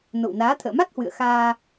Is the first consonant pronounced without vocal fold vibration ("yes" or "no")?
no